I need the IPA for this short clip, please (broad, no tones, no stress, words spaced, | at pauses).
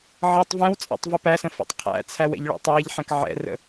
ʕʌtˤ vɛ̃wt͡sʼɛ̰tˤ vəpæsə̃ fɔ̰tˤqʰæ̰t͡sʰæw ɛ̰ʎɭɛ̰tˤæʎħɛ̃k ʕɛ̰rə̰